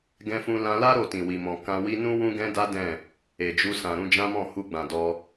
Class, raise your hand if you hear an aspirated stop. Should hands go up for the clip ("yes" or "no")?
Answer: no